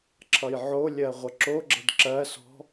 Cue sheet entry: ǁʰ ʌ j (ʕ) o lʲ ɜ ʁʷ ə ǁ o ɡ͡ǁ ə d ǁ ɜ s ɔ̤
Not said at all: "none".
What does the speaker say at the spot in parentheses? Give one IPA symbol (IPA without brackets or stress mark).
ʕ